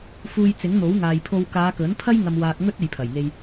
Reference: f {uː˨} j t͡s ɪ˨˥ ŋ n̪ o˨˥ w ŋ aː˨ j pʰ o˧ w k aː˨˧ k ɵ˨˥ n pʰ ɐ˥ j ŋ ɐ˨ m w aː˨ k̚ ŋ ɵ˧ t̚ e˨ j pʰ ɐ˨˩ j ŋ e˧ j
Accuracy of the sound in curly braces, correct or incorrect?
correct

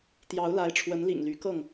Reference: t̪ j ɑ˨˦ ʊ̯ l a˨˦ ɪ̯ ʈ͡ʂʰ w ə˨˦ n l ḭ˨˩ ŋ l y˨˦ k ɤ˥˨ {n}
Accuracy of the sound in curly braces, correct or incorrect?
incorrect: ŋ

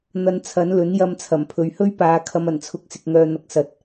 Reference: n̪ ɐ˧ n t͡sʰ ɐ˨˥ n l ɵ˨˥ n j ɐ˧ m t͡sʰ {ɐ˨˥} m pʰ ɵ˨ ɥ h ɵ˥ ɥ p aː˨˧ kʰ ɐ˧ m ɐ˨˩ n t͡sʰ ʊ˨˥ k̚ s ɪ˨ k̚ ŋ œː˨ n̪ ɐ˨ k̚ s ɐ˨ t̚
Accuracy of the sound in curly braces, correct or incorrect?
incorrect: ɐ˨˩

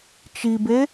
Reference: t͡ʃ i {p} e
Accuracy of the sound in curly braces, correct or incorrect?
incorrect: b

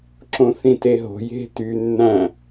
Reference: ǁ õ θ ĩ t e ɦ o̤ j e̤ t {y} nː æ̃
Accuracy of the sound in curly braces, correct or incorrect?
correct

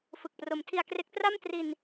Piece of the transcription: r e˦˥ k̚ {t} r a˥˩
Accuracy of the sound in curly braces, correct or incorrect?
correct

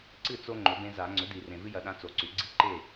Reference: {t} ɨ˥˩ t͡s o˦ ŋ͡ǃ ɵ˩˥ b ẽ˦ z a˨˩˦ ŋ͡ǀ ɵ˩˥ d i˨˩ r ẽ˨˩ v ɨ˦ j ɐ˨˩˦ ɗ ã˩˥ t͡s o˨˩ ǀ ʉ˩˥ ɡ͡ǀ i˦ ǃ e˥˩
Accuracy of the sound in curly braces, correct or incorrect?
incorrect: ǀ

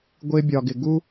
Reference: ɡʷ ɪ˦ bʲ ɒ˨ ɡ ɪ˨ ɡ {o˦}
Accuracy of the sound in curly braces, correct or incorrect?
incorrect: u˦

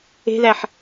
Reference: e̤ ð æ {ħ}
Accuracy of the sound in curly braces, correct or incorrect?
correct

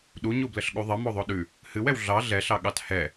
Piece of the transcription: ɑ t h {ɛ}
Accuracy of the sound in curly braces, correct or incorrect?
correct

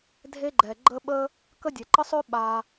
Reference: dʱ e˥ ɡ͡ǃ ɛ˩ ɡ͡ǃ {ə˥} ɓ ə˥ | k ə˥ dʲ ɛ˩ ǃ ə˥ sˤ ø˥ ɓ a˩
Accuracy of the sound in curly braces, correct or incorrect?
correct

